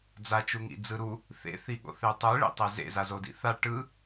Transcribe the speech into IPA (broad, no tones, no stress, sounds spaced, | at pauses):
d͡z a t͡ʃ u ŋ ḭ d͡z ɯ ɾ u | θ ḛ θ i ɠ o̰ θ e tˤ ɯ ɭ ḭ tˤ e z ḛ z a z o d ḭ θ a ʈ ɯ